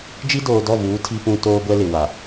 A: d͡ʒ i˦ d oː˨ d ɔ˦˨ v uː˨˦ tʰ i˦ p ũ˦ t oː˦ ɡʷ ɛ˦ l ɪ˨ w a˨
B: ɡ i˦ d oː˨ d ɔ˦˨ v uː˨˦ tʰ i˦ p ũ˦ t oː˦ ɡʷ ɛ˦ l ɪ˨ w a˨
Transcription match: A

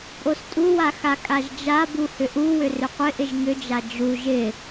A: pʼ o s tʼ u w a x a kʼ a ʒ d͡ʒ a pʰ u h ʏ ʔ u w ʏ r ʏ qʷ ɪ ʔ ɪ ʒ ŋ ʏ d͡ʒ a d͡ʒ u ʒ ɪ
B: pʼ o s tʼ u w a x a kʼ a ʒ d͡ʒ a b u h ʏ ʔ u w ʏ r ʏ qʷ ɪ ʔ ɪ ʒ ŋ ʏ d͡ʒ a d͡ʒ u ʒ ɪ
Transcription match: B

